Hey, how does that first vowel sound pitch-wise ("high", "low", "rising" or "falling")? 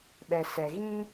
low